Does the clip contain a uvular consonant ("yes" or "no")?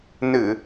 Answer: no